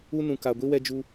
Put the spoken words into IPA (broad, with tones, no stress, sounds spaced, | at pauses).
u˦ n ũ˨ k a˨ ɡʷ i˦ w ɛ˦ d͡ʒ u˦